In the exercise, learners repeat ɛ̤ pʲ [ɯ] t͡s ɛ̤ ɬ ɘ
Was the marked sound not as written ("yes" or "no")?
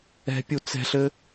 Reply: yes